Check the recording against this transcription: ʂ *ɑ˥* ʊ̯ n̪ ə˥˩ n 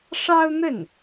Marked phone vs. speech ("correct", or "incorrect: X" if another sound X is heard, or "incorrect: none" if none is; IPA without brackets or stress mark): correct